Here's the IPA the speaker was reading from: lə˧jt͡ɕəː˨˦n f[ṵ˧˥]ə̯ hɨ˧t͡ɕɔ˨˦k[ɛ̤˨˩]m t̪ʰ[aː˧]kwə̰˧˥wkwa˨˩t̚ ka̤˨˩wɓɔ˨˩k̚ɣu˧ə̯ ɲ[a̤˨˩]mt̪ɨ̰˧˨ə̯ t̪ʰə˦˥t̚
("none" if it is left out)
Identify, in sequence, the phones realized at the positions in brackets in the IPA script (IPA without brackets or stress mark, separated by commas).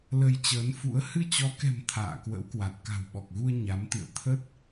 ṵ˧˥, ɛ̤˨˩, a̰ː˧˨, a˨˦